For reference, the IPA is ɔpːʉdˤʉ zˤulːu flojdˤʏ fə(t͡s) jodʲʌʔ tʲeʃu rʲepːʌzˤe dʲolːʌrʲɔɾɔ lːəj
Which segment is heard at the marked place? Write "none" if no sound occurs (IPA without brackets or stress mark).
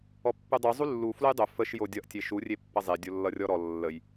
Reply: ʃ